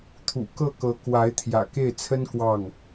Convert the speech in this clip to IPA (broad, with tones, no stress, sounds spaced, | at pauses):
t̪ʰ ṵ˨˩ k ɤ˥˩ k ɤ˧˥ k w a˧˥ ɪ̯ t̪ʰ j ä̰˨˩ k e˥˩ ɪ̯ t͡sʰ ə˥ n k w ɑ˥˩ ŋ